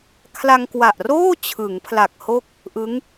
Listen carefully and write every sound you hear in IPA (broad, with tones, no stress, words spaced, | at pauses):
kʰla˧ŋkwa˨˩ʔroː˥˩ t͡ɕʰɯ˩˦ŋpʰla˨˩k̚ ho˥˩k̚ | ʔɯ˦˥ŋ